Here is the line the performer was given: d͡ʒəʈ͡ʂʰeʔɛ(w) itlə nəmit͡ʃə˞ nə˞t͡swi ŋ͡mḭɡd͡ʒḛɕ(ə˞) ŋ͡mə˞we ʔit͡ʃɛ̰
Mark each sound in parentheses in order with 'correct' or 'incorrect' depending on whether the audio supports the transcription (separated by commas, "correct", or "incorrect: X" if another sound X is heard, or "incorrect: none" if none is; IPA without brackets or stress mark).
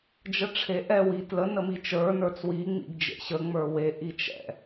correct, incorrect: ə